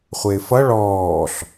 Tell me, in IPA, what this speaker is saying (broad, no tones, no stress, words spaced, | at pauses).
χʷɪːfʌ ɭɔːɬ